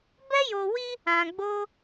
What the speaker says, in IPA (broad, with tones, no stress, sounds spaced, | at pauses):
b ɛ˦ j o˧ w i˦ | ã˧ ɡ͡b o˦